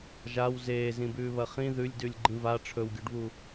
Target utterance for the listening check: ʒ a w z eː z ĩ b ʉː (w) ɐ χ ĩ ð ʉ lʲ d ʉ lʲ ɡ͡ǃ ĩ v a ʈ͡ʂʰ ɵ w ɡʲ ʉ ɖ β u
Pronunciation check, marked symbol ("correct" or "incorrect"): incorrect